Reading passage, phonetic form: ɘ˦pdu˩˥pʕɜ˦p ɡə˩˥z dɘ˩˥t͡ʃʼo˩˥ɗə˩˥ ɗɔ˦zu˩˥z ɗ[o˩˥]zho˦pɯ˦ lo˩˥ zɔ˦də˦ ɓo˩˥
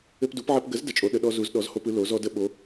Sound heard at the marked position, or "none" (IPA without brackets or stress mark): ɔ˩˥